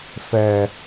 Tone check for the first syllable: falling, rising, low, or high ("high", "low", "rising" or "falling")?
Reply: high